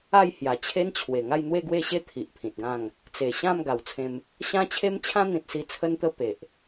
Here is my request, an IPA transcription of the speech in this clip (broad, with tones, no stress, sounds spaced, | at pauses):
a˥˧ j h j a˨˩ t͡ɕʰ e˦ n t͡ɕʰ w e˨˩ ŋ a˥˧ j n̪ w e˥˧ ɡ w e˥˧ ɕ e˦ t̪ʰ i˨ ʔ pʰ ĩ˨ t̚ ɡ ã˥˧ ŋ | t͡s e˨˩ ɕ ã˥˧ m ɡ a˨˩ w t͡sʰ ẽ˧ m | ɕ ã˦ t͡ɕʰ e˦ m t͡ɕʰ ã˦ n̪ ĩ˨ t̚ s i˧ t͡sʰ ə˧ n t̪ ə˧ p e˨ ʔ